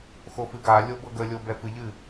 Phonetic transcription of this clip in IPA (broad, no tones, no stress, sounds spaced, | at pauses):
x o f ɨ ɡ a lʲ o b ɤ ɡ ə lʲ o b ɛ f ɨ ʎ ɨ